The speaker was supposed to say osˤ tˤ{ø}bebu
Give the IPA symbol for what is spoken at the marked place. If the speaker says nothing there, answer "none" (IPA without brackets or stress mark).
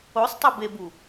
e